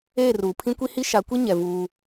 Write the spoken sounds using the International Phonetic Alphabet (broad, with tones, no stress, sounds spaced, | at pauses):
eː˦˨ r uː˨ pʰ ĩ˦ kʷ i˦ h i˦ ʃ a˨˦ kʷ i˦ ɲ ɛ˨ v uː˦